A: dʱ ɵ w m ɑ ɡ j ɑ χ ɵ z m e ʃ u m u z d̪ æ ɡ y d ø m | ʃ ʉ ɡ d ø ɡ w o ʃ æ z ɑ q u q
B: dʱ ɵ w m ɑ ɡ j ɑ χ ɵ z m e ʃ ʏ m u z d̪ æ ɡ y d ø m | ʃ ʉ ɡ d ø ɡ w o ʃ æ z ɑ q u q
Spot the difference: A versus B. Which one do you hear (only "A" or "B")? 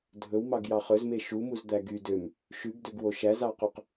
A